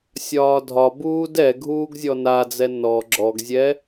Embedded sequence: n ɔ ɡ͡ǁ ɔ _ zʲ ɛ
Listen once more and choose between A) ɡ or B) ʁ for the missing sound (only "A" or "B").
A